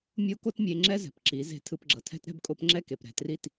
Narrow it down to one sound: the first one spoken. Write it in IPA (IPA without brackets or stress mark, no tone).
mʲ